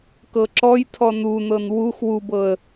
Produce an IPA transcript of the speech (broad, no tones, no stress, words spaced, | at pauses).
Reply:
kɤǁɔjtʰɔ nunɤn wux wubɤə̯